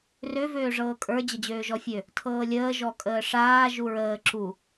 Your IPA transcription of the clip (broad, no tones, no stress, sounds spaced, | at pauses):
r ø v øː ʐ ɤː kʼ ə˞ d͡ʑ ə d͡ʑ øː ʒ ɔ fʲ ø | tʰ ɤː lʲ əː ʒ ɔ kʼ əː ʂ aː ʒ u ɹ əː ǁ u